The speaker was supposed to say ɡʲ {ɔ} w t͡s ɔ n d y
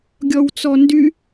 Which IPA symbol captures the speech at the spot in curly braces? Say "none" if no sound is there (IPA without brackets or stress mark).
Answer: ɔ